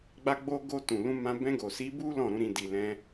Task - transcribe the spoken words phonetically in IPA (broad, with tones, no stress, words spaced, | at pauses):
ɡ͡ba˧ɡ͡bo˧ɡo˧ tũ˨lũ˧mã˧ bɛ̃˧ɡo˨si˨˦bu˦ lɔ̃˦˨ɾũ˨˦ ɾĩ˧ di˨lɛ̃˧